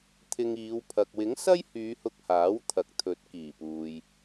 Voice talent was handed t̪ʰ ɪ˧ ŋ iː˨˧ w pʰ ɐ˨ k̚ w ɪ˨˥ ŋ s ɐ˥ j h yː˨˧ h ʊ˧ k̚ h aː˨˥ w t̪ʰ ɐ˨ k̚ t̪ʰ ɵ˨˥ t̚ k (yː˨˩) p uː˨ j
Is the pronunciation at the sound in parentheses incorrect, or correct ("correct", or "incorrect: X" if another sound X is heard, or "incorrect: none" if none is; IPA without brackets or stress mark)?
incorrect: iː˨˩